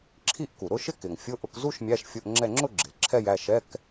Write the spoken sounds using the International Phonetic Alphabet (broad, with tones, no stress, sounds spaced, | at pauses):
ǁʰ i˥˧ ʔ k u˩ ɾ ʊ˥˧ ʃ ɪ˥˧ k ɪ˩ ŋ fʲ ʊ˧˥˧ ʔ ʊ˧˥˧ k z u˥˧ ʃ mʲ æ˧˥˧ ʃ fʲ ʊ˧˥˧ ʔ ŋ͡ǁ ɛ˥˧ ŋ͡ǁ ʊ˥˧ ɡ͡ǁ ɪ˩ l ǁʰ ɛ˥˧ j æ˥˧ ʃ ɛ˧˥˧ k